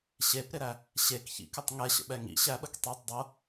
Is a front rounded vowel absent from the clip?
yes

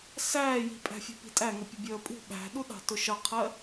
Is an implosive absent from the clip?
no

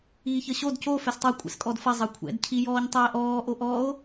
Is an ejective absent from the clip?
no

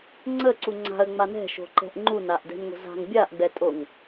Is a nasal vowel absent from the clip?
yes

